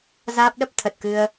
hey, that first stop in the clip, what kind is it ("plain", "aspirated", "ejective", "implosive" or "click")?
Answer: plain